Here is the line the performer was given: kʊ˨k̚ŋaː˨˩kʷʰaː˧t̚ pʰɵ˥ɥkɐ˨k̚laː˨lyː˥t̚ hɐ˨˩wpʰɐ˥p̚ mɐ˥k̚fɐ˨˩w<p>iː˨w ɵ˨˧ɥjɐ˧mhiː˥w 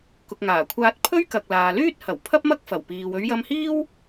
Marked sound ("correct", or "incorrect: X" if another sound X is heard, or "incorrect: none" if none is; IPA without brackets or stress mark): correct